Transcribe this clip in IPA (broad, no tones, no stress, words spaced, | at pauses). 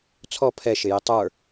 t͡sʰɔ pʰɛʃɪjɪ tˤə˞